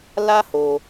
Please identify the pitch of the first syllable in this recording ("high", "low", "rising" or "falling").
high